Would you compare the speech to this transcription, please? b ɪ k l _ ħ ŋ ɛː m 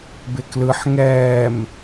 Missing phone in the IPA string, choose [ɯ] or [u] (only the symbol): ɯ